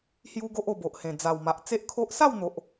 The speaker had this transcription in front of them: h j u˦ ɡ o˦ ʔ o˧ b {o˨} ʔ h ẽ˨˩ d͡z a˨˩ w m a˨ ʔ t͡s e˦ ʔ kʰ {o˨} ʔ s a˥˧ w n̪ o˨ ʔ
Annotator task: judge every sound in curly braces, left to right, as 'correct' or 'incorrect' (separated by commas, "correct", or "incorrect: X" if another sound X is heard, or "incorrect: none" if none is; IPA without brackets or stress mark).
correct, incorrect: o˦